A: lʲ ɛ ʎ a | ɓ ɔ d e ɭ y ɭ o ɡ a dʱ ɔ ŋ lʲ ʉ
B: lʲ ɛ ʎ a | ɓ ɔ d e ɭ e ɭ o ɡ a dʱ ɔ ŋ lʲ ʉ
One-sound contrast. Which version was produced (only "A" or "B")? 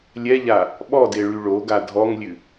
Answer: A